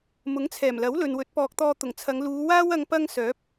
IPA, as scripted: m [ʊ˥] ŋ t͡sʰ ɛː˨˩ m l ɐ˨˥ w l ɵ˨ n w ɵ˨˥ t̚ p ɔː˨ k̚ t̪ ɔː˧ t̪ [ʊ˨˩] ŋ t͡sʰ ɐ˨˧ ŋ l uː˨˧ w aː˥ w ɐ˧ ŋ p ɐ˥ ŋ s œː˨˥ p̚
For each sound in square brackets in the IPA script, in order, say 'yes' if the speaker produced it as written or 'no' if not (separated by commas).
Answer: no, yes